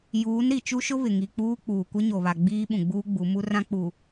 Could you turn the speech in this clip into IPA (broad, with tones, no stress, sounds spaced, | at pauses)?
j uː˨˦ n ɾ i˨ t͡ʃ u˦ ʃ ʊ˦ β ɪ˨ ŋ i˨ k͡p uː˦ k͡p uː˨ kʷ ɪ˦ ɲ o˨ β a˨ ɡ͡b iː˦ ɓ ũ˨ ɡ͡b uː˦ ɡ͡b u˨˦ m u˦ r ã˦ k͡p u˨